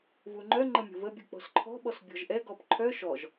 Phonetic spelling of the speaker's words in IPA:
v u ŋ͡ǃ œ ŋ͡ǃ ə mʲ o̤ v ə bʲ u k͡p ɔ̤ s ǃʰ ɔ̤ ɓ ɔ s bʲ ɔ̤ ʒ ʔ ɛ ɡ ɔ p ǃʰ œ ʃ ɔ ʒ

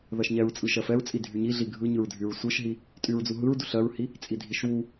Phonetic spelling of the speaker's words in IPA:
ð ɜ ʃ ɲ ɛ ɹ t͡sʼ ɯ ʃ ɜ f ɛ ɹ t͡sʼ i dʱ y ɲ i ɮ i ɡʱ ɯ ɲ ɯ ɹ dʱ y ɹ sʷ ɯ ʃ ɦ i | tʼ y ɹ d͡z u ɦ ɯ ɹ d u ɬ ɜ ɹ h i | t͡sʼ i dʱ i ʃ w u

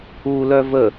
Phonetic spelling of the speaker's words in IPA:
u l œ v ə

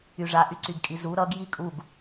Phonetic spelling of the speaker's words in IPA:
y ʐ a ʔ y ǀ y ɡ kʼ i z u ɾ ʌ ɡ j i kʼ u ɡ

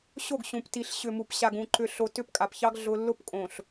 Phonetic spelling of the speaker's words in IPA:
ɕ o˦˨ ɡ ɕ ũ˨ p t i˨ ɬ ɕ ʏ˨ m u˨ p ɕ a˨ ɡ ũ˨ ǃ ʏ˨ ɬ o˨ t ʏ˦˨ p kʼ a˨ p ç ɑ˦ ɡ ɮ ʊ˦ lː ʊ˦ p kʼ õ˨ ɬ

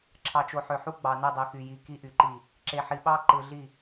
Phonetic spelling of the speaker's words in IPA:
ǁʰ ɑ˨ t͡ʃ o˨ ħ ø˨ ħ u˦ ɡ͡b ɑ˨ n ɯ˦˨ dˤ i˨ x y˨ j i˨ k i˦ ʔ y˨ ǃ i˦˨ | ǁ e˨ ħ i˨ ɓ ɑ˦ ǃ ɯ˨ ɮ i˦˨

